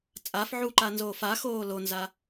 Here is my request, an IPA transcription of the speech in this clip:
t͡sʼ a f ʕ u ǃ a n z oː f a x oː l o n z a

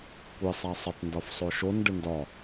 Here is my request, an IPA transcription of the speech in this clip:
kʷ ɪ sˤ a sˤ ɪ tˤ n d ɒ f sˤ o ʃ o n ɖ ɪ n d ɒ

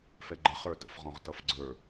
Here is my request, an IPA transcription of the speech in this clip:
f ɛ ɡ͡ǃ ə χ ə˞ t ə̰ f ʁ ɔ̃ ʁ t ʌ f ɡ͡ǀ ə˞

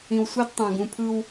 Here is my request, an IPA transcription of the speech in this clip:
ĩ˨ w sʷ i˦ d tˤ ã˨ ɡ ũ˨ pʰ ɯ˦ w

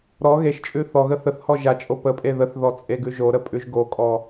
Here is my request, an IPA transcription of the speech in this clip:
ɾ ɔ ɣ e ʃ t͡ʃʼ ʉ θ ɔ ɣ ə θ ə θ h ɔ ʒ a t͡ʃʼ o p ə pʼ e ð ə θ ð ɔ t͡sʼ e ɡ ʉ ʒ o ɾ ə pʼ ʉ ʒ ɡ o kʼ ɔ

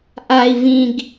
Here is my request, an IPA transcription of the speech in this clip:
ʔ a˨ i̯ v ĩ˨ ɡ

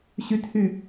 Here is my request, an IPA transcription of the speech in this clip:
ɕ y t h y

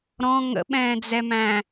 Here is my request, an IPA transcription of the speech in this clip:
ɾ ɔ̃ ŋ ə̰ ɓ ɛ̃ː d͡z ɛ m æ̃

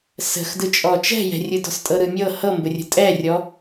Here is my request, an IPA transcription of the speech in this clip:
s ə̤ x d ɯ t͡ʃʼ ɔ t͡ʃ ɛ̤ j ɛ̤ rʲ ɯ d ɔ̤ s tʼ ɤ ɾ ɯ mʲ ɤ h ɤ m b ə rʲ ə̤ tʼ ɛ rʲ ɔ

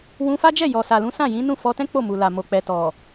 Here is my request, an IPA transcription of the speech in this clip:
w ũ˧ f a˦ d͡ʒ ɛ˦˨ j ɔ˨ s a˨ l ũ˨˦ s ã˦˨ j ĩ˨˦ n ũ˦˨ f ɔ˧ t ɛ̃˦ k͡p o˦˨ m u˨ l a˨ m o˨ k͡p ɛ˨ t ɔ˨

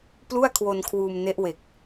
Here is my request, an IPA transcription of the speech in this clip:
p l u˥˩ a̯ kʰ w o˧ n kʰ w uː˧ m n e˦˥ ʔ w e˨˩ k̚

